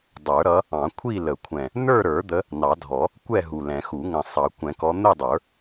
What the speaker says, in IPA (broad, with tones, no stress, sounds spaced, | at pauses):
dˤ ə˞˨˩˦ ɾ ʌ˨˦ | ɑ̃˨˩˦ kʷʰ i˥˨ l ə˨˩˦ kʷʰ ɛ̃˨˩ | n ə˞˥˨ ɾ ə˞˨˩˦ d̪ ə˨˦ | n ɑ˨˩˦ dʱ ɔ˨˩˦ | kʷ ɛ˥˨ ɦ u˨˩ l ɛ̃˨˩˦ x u˨˩˦ ŋ ə̃˨˩ sˤ ɑ˨˩˦ kʷ ɛ̃˨˩˦ k ɔ˨˦ n̪ ə˥˨ dˤ ə˞˨˩˦